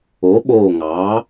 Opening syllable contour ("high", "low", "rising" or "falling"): rising